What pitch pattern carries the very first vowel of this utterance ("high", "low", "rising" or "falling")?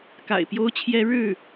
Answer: low